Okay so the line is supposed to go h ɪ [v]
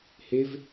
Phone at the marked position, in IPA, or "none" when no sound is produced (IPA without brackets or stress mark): v